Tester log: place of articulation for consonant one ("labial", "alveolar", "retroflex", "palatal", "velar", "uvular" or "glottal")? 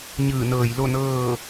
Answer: palatal